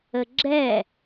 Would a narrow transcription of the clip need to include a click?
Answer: yes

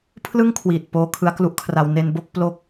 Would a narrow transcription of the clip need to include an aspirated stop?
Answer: yes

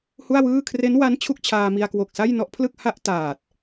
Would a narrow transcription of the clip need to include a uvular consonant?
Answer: no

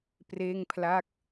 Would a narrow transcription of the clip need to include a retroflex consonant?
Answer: no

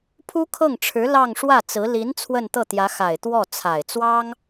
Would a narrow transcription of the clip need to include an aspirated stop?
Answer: yes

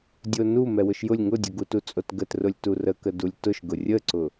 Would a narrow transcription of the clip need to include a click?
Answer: yes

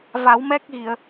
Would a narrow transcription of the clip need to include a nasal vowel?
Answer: no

